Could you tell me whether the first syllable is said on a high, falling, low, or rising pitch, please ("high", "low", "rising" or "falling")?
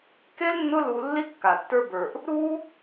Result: high